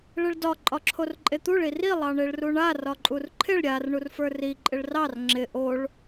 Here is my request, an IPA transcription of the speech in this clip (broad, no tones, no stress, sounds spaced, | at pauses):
ɭ ɪ ɭ d ɒ ǃʼ ɒ ǁʰ o r ǃʼ e t̪ u ɭ i r i lˠ ɑ ɳ e ɭ r u ɳ a r ɒ ǃʼ u r ǃʰ ɪ ɭ ɾʲ a r ɳ u r f ə˞ r i ǃʼ ɪ ɭ r ɑ r ŋ͡ǁ ɪ ʔ o ɭ